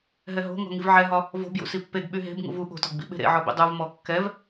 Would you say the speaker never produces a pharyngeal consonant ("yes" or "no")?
no